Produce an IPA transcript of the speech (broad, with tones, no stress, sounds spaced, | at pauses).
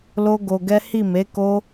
l o˦ ɡ o˧ ɡ ɛ˦ h i˦˨ m e˨˦ k o˦